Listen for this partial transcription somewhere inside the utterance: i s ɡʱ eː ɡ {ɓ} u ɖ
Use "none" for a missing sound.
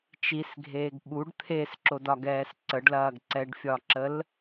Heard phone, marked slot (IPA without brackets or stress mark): ɓ